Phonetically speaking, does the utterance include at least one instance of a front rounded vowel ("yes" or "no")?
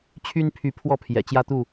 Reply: yes